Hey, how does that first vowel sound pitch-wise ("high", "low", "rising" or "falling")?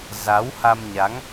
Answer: rising